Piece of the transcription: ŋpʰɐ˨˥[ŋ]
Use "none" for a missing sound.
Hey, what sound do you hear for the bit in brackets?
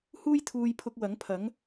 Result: ŋ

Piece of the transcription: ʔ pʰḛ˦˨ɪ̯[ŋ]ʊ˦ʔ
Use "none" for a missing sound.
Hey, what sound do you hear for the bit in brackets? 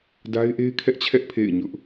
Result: ɲ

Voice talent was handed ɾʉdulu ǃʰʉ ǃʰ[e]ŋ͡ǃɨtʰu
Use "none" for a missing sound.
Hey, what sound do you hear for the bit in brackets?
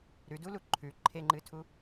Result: e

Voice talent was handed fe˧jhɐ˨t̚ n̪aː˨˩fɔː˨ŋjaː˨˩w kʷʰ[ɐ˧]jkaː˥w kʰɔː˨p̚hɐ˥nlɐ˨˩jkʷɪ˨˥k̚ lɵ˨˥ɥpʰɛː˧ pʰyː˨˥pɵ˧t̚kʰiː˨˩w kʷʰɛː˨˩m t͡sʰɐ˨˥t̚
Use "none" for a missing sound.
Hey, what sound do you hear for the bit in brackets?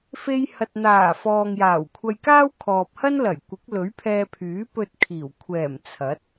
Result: ɐ˧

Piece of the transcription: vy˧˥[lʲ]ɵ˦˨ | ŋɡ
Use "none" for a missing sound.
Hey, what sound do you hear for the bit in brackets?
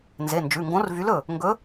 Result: l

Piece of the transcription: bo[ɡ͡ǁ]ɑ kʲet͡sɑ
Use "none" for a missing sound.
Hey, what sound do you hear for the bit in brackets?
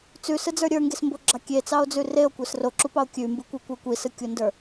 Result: ɡ͡ǁ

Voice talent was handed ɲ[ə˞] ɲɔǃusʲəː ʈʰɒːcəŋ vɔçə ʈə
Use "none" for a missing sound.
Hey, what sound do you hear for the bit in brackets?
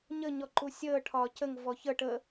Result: ə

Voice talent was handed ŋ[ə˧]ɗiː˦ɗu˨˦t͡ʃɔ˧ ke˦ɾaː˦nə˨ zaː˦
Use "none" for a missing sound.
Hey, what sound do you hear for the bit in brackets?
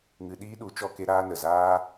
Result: ɨ˧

